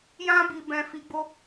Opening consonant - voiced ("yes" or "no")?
yes